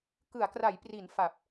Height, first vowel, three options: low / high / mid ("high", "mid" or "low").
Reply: high